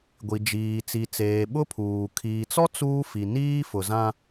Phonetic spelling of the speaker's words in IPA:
ɡʷi˨d͡ʒiː˨t͡si˨t͡seː˨ ɓʊ˦pʰuː˨ kʰiː˨t͡sɔ˦ t͡suː˦fi˨ niː˦fʊ˨zã˦

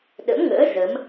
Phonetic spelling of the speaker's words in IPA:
ɗə̰˧˥mŋə̰ː˧˥ zə˨˦m

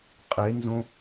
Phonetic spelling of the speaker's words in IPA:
qʼenzõ

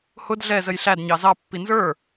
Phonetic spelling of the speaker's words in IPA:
hʊd ɮɛ zəjɬædɲɑ zɑpːi nzə˞

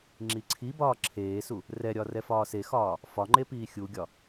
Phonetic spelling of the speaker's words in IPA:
ŋ͡ǁiǀʰi bɒːǁʰeːsu | rɛɾʲɒ rɛfɒːsexɒː | fɒŋ͡ǃepiː xʲuɡʲɒ

